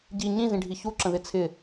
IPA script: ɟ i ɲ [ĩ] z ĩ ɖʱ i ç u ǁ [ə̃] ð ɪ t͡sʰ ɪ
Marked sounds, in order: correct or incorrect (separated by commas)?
correct, correct